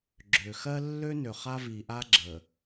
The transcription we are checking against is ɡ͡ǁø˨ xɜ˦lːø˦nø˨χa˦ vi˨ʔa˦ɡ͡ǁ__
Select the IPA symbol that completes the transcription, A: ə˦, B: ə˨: B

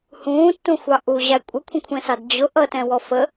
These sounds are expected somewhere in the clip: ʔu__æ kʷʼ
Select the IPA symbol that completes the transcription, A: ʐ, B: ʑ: B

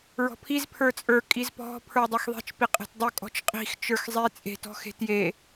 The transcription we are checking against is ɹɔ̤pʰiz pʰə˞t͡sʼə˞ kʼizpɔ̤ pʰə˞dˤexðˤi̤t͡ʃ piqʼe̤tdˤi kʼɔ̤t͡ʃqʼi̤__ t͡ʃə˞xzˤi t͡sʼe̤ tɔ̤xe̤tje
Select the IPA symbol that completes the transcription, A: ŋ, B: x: B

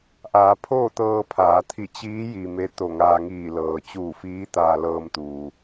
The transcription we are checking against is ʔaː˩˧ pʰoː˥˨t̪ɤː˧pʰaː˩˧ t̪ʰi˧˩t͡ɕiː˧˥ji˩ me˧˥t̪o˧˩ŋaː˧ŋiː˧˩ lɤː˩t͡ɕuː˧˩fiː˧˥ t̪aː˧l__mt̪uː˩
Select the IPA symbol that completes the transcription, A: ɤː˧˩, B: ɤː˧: B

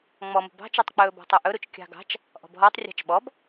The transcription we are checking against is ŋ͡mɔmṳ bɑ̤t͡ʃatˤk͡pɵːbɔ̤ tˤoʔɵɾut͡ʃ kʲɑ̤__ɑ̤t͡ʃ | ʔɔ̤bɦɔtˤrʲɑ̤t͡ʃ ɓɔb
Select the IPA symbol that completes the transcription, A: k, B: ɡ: B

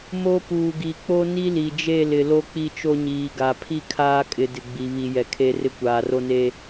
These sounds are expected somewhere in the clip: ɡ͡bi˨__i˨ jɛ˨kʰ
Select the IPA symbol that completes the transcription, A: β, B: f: A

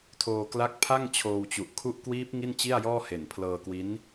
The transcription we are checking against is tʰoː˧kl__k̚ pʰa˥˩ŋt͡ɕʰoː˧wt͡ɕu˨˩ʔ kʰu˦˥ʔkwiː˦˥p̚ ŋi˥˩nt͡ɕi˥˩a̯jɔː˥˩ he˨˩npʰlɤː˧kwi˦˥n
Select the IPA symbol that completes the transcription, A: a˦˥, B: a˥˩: A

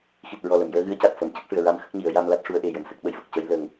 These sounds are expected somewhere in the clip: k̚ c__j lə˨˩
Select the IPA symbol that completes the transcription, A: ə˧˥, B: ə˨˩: A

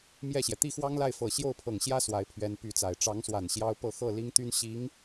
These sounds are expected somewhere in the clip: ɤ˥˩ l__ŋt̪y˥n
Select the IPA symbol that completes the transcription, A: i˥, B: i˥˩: A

